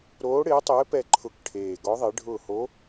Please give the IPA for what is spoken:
ɾ oː˧˥ ɽ ɪː˧˥ tˤ ɪː˧˥ p ɛ˦˨ ǃʰ ʊ˧˩˧ k ʈʰ eː˨˩ ɡ ɔ˧˥ ðˤ e˧˥ ɖʱ ʊː˦˨ h o˧˥

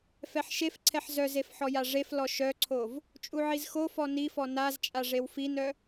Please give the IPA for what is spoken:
f ɛ ħ ʃ e f ǀʰ ɛ ħ z œ z e f ħ ɔ j a ʐ e f l ɔ ʃ œ ǀʰ o v | t͡ʃʼ u ʕ i z x o f ɔ n i f ɔ n a z t͡ʃʼ a ʐ e w f i n œ

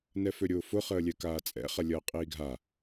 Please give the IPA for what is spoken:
n ɛ f ø ɾʲ ʊː f ʊ χ əː lʲ ɛ k aː t͡sʼ ɛ̰ χ ɐ lʲ ɐː qʼ iː ɡʱ a

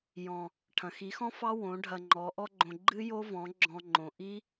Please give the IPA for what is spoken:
j ɔ̃˨ | ʈʰ ɐ̃˨ x i˨˦ x ɔ̃˦ f ɑ˦ w õ˨˦ ɖʱ ɐ˧ ŋ͡ǃ ɔ˨˦ ʔ ɔ˦ ɡ͡ǃ õ˧ ɡ͡ǃ ɨ˦ j o˦ v ɔ̃˨˦ ɡ͡ǁ ɔ̃˧ ŋ͡ǃ õ˨ ʔ i˦

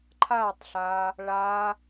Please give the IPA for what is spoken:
ǃʰ a tˤ ɬ a | ɭ a

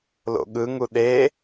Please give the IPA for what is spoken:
l o̰ ɠ ɯ ŋ u ɗ e

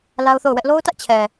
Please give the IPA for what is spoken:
l a˦ ʊ̯ θ o˦˨ ʊ̯ w ɛ˦ ʔ l o˦ ʊ̯ t ä˦ ʔ t͡ɕʰ ɛ˨

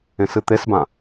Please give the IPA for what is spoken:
ẽ s ɨ t̪ e s b ã

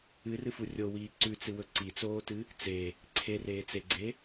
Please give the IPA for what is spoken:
ɨ r ɨ f u rʲ o w iː ǀ ʉ t͡s ɨ w ɵ ǀ i t͡s oː t ɨ | t͡s e | ǀʰ e r eː t͡s e ɡ͡ǀ e

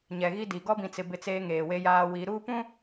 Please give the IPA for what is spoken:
ɲ ɛ˨ ɣ i˦ d i˨ ɡ ɔ˦ b ĩ˨ t͡s ɪ˨ b ɪ˦ t͡s eː˦ ŋ eː˨ w e˦ j aː˦ w i˨˦ ɾ uː˦ p ũ˦

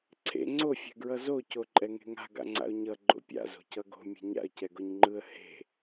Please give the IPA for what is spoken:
ǀʰ ḛ ŋ͡ǀ o fʲ ɛ̤ ɡ ɹ ʌ z o c o ǃʼ ɛ ŋ e̤ ŋ a̤ ɡ a̰ ŋ͡ǀ a̰ ʊ̯ ɲ ʌ ɡ͡ǃ o̰ pʲ a̰ z o̤ c ʌ ɡ o̤ mʲ ɛ̤ ɲ a̰ ə̯ c ɛ ɡ o ɲ ŋ͡ǃ ɯ ə̯ h e̤

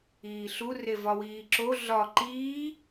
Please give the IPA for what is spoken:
iː ɬ u r e v ɒ w iː ǁ o ɮ ɒ ǃ iː

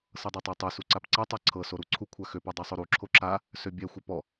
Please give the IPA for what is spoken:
s ɤ dˤ ɛ tˤ a tˤ ø s u ǀ a p ǀ a tˤ a ǀʰ ɤ s o ɾ u ǀʰ u kʷʰ a x ø p a dˤ ɛ sˤ o ɾ u ǁʰ o ǁ a | s ø bʲ ɛ xʷ ɛ p ɔ

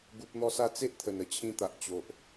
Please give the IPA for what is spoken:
ɡ u˨ p̚ n̪ ɔ˧ s a˧ t͡s e˦ ʔ t̪ʰ ə˨˩ n ə˨˩ t͡ɕʰ ĩ˧ t̪ a˨ ʔ t͡ɕ o˨ ʔ

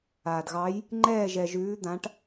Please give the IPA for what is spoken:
aː˩ d ɣ ɑ˨˦ j | ŋ͡ǃ ɛː˦˨ ʒ ɛ˩ ʒ ʉː˨˦ d̪ ã˨˦ ʈ

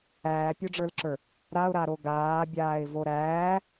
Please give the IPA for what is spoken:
æː pʲ o ɖ͡ʐ ə˞ l ǁ ə˞ | ɾ a ʊ̯ ɾ a ɾ o ɡ aː bʲ aː ɪ̯ v o ɾ æː

